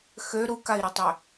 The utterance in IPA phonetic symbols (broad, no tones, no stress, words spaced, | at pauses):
xø ɾukai̯ɾətˤø